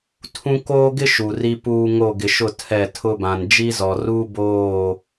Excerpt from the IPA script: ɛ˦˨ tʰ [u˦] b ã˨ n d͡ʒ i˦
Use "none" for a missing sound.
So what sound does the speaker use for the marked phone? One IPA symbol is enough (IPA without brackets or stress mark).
ʊ˦